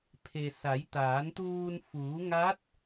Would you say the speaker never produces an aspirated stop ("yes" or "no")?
no